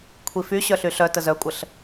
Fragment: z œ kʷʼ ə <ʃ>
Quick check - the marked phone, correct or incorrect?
incorrect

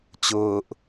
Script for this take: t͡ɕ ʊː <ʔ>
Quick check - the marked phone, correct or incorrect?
correct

